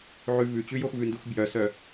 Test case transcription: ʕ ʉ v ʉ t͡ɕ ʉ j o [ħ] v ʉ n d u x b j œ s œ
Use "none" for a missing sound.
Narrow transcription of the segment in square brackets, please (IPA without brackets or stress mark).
x